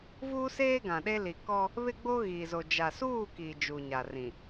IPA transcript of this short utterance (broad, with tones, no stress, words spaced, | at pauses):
vuː˦seː˦ɡã˨ɗe˦ li˨kɔ˦ | βɪ˦ɡ͡bo˦ɣiː˨zo˨ d͡ʒa˨suː˦˨ki˨ d͡ʒu˨ɲa˨ rĩ˨